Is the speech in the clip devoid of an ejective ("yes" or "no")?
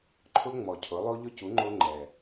yes